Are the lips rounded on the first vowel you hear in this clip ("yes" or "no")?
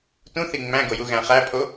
yes